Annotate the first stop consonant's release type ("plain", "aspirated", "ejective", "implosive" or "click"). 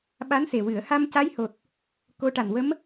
implosive